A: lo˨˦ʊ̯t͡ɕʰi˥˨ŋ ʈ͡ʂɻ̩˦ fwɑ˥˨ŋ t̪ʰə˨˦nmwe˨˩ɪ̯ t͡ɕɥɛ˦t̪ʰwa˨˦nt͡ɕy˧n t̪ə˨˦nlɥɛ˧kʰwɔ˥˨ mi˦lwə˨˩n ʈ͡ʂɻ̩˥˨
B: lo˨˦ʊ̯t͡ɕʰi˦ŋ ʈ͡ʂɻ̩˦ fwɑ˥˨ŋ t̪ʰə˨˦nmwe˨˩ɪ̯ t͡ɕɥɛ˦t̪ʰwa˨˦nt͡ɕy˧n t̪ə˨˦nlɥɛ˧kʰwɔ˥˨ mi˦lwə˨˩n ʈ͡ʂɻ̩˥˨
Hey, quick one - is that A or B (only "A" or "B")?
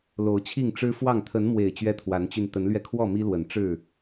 A